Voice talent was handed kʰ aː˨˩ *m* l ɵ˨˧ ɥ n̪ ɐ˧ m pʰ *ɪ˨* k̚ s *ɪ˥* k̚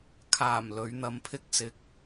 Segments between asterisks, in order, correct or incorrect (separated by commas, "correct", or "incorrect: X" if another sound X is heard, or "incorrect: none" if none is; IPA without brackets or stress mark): correct, incorrect: ɪ˥, incorrect: ɪ˧